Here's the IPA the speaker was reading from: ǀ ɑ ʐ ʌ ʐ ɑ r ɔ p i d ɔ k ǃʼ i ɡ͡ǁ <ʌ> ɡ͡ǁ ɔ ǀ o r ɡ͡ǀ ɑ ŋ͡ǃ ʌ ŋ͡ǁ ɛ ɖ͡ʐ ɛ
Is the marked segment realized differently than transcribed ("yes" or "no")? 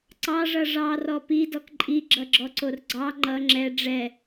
no